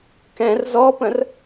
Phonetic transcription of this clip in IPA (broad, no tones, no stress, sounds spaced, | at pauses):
k ɛ̃ r z ɔ p ə̃ r